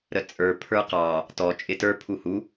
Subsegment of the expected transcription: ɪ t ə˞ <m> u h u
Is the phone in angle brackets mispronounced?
yes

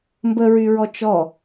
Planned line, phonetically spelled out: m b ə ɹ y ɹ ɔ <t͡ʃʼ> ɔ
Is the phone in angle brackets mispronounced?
yes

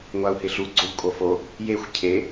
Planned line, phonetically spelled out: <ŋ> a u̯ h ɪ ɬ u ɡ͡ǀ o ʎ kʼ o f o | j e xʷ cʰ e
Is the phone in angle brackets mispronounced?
yes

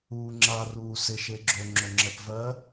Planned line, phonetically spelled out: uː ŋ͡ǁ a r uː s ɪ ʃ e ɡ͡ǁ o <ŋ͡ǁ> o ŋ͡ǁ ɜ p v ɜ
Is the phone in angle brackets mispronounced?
no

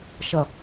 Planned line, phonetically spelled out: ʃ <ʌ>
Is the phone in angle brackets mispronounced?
no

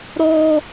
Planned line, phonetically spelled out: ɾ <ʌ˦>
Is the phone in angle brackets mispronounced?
yes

